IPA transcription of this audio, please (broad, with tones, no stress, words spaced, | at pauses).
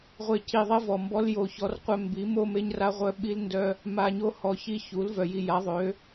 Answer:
ʁʷe˦ ci˧ðˤe˦ vɔ˨mbɔ˦l jo˧çɔ˦rqʷœ˦ mbi˨˦mo˦me˦ɲra˦ ʁʷœ˦ɓi˦lndœ˦ | ma˧ɲo˦ hɔ˨çi˧ çu˨˦lvœ˨ji˧ ja˨˦ðˤø˨˦